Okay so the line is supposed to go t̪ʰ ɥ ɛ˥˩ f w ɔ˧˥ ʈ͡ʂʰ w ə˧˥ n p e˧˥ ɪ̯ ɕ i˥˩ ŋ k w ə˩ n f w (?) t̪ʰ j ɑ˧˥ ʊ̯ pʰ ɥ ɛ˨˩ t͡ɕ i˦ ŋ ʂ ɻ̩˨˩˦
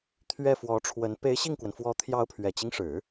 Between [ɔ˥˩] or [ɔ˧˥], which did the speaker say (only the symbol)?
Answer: ɔ˧˥